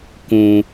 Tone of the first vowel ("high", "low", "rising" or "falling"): low